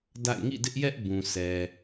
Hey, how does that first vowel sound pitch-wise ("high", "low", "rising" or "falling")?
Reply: falling